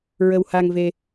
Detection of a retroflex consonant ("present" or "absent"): absent